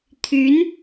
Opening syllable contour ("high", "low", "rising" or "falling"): rising